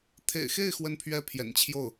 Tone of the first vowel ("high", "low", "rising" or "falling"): low